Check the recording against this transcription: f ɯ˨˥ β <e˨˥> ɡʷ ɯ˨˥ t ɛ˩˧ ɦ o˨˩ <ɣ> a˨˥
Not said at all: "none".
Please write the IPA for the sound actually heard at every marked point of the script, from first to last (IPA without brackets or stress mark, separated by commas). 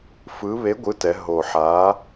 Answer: e˨˥, ħ